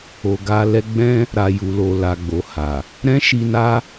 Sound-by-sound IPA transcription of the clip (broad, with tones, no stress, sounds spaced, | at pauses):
o˨ ɡ a˧ l ɛ˦ ɡ͡b ɛ̃˦ | ɾ a˨ j u˨ l o˨ l a˨ ɡ͡b o˨ h a˨ | ɾ ɛ̃˦ ʃ i˧ n a˦